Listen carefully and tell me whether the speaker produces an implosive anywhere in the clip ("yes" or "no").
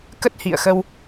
no